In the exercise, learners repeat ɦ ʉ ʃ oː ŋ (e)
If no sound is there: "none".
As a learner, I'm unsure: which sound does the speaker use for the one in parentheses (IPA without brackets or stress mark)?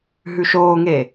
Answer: e